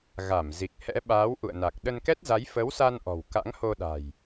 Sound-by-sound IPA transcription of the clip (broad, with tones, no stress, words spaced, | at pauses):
ɣa˧˩m zi˨˩k̚ hɛ̰˧˥ɓaː˨˦wʔṵ˧˨ə̯na˨˩k̚ ɗə˧nkɛ˦˥t̚za˨˦j fə˨˦wsa˧nʔɔ̤˨˩w ka̰˧˥ŋho˧ɗa̤˨˩j